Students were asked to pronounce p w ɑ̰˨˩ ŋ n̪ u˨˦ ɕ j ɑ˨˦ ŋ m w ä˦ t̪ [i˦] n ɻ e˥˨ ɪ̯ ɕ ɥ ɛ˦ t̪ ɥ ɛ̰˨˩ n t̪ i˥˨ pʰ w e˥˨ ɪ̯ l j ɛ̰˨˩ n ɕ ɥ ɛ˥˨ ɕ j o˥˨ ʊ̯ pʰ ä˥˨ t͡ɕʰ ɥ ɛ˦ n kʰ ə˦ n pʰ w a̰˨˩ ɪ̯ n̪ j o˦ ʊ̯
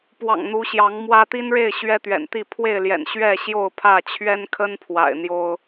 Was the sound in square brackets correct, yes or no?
yes